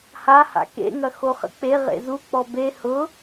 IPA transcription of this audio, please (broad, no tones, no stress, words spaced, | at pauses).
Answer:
haha̰ kḛŋɐ xoχə̰k͡pe ʁḛzuk͡pɔ be hʊ